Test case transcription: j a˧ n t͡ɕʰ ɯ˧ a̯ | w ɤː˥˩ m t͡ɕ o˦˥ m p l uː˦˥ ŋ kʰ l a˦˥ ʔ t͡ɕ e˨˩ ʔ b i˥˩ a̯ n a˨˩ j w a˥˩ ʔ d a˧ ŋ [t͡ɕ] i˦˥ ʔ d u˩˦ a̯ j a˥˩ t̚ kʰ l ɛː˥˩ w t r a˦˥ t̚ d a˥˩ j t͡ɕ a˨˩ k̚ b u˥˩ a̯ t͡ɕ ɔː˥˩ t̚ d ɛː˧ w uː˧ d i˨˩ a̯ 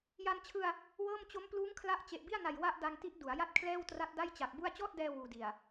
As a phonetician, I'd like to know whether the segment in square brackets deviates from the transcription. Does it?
yes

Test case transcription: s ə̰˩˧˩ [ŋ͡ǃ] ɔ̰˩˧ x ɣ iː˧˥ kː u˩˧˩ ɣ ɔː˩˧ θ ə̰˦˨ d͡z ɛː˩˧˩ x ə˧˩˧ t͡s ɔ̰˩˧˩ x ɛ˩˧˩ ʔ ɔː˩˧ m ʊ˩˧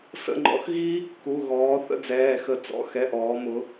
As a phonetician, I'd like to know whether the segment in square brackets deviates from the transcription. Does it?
no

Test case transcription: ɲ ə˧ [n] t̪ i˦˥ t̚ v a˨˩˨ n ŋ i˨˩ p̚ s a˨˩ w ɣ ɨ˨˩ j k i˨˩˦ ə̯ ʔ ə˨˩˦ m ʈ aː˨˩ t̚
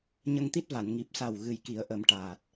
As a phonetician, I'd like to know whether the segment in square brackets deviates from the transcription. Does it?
yes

